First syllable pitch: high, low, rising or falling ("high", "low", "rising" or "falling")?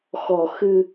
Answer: low